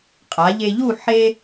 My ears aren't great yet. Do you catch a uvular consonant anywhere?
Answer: yes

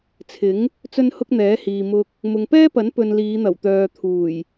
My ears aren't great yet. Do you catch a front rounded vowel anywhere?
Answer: yes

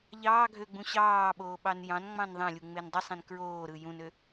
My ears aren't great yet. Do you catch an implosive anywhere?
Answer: yes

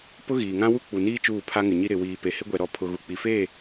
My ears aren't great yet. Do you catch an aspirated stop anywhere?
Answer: yes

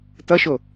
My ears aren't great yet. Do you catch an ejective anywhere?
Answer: no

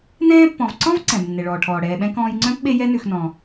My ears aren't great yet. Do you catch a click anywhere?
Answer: yes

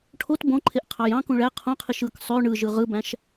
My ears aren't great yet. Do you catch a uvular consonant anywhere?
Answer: yes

